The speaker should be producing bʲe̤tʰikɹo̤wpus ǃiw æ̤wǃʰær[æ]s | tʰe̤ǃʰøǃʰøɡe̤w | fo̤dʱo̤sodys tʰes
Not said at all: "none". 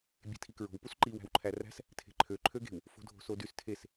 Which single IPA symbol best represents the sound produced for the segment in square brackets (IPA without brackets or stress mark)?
æ̤